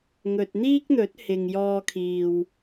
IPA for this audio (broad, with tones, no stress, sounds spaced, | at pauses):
ŋ ɵ˨ t̚ n̪ iː˥ k̚ n̪ ɵ˨˥ t̚ h ɪ˨ ŋ j ɔː˧ kʰ iː˨ w